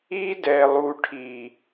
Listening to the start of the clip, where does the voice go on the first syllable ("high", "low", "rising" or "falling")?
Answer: high